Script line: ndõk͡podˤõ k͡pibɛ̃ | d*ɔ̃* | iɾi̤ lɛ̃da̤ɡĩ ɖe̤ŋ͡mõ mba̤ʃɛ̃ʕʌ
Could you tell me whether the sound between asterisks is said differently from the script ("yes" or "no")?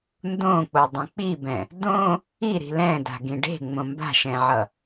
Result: yes